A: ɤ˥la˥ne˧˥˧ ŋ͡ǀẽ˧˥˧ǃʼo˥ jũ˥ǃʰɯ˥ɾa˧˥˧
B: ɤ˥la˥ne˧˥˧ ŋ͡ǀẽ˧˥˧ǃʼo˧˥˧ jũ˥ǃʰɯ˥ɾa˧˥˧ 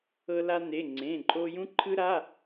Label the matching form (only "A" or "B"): A